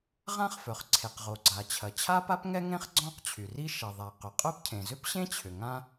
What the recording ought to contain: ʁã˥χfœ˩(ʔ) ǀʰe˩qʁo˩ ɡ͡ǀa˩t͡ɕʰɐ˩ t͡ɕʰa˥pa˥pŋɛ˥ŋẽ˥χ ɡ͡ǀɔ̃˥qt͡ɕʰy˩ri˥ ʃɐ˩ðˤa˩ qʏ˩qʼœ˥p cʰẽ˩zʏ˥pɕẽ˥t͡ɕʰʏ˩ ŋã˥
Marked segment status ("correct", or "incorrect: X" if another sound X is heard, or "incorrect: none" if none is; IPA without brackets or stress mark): incorrect: χ